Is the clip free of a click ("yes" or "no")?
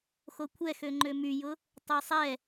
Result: no